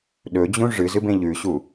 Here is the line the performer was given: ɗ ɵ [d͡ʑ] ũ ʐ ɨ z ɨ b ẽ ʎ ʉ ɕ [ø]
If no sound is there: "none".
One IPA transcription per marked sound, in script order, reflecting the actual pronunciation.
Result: d͡ʑ, u

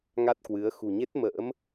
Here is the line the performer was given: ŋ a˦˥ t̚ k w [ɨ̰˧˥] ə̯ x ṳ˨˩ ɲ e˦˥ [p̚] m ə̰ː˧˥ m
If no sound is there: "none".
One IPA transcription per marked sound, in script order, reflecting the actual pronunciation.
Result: ɨ˨˦, t̚

